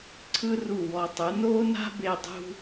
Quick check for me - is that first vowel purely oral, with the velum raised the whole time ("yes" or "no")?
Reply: yes